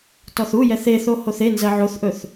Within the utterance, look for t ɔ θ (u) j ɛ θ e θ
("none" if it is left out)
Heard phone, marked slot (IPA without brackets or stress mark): u